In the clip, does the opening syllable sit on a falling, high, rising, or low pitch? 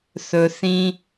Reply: low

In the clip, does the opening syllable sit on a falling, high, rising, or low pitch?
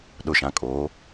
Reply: low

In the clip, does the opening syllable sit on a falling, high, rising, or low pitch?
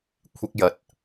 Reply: high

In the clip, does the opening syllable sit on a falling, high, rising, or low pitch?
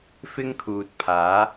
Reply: high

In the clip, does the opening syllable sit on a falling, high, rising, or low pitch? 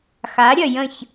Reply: rising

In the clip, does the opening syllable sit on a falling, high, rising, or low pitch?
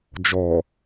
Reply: low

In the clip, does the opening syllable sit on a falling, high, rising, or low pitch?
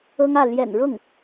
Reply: high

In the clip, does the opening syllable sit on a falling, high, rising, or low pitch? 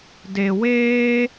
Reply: low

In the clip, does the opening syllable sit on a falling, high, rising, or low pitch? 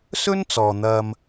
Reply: high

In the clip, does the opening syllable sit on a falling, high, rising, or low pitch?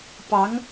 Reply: rising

